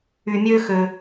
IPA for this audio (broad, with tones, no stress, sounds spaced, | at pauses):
y˨ mʲ ø˦ x ø˨